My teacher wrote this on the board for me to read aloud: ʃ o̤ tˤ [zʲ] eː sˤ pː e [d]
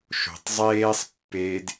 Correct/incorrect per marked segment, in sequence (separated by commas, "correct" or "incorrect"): incorrect, correct